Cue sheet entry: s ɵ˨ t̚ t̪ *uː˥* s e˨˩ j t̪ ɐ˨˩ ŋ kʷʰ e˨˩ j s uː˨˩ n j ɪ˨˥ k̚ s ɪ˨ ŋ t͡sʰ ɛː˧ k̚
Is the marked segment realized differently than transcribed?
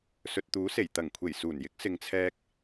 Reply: yes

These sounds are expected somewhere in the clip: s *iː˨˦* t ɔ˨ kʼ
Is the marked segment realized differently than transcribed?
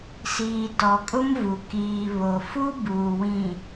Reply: yes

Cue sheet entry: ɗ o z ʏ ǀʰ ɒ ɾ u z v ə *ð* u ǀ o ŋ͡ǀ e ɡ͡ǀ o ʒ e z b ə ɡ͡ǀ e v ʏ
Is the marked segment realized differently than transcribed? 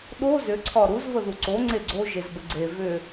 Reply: no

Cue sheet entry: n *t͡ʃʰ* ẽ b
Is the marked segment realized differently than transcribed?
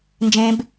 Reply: yes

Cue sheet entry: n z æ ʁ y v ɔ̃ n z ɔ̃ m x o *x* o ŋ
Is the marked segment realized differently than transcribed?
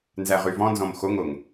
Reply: yes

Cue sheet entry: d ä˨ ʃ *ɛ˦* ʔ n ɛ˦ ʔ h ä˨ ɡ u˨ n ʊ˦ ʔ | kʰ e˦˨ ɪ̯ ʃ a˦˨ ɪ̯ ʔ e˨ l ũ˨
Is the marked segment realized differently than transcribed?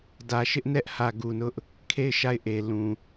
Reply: yes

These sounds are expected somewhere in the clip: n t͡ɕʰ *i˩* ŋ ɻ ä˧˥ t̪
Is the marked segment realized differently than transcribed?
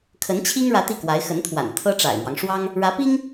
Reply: yes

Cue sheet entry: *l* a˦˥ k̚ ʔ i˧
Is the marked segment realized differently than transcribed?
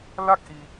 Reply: no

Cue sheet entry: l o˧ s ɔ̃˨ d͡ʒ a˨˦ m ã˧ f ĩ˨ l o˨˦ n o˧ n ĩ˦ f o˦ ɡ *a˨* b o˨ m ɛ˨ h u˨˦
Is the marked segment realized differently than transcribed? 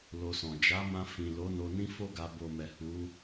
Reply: yes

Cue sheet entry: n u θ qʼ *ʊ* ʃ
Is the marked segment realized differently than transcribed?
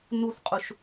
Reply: yes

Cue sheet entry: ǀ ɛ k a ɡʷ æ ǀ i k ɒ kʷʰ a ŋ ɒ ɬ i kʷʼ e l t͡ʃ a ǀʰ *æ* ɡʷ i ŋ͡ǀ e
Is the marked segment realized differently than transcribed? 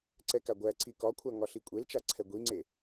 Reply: yes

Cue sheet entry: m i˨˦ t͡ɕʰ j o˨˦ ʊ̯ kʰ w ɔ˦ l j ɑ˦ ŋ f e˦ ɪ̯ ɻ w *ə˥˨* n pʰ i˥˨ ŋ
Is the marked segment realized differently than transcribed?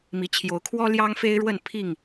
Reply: no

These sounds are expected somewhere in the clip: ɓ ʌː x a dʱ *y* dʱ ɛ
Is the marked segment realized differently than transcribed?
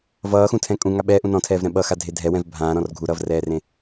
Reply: yes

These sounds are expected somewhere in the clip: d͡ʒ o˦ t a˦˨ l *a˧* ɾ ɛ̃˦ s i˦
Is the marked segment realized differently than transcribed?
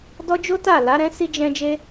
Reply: yes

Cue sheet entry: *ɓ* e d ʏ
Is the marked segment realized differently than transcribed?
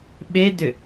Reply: no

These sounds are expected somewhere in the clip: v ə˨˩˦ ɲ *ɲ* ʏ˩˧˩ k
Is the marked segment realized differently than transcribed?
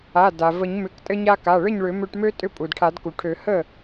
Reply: yes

